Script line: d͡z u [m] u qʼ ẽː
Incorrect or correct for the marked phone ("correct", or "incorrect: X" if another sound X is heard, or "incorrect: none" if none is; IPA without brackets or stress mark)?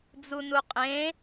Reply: incorrect: n